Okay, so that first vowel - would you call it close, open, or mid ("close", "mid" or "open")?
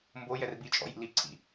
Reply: mid